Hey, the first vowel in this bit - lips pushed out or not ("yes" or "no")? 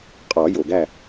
yes